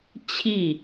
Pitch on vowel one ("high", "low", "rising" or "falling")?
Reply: falling